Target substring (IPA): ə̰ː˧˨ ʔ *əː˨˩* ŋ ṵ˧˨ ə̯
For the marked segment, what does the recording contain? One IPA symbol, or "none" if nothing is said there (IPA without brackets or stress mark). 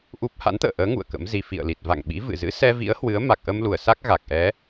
əː˨˦